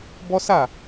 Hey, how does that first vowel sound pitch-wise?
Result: high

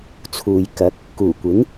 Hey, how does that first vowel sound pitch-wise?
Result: low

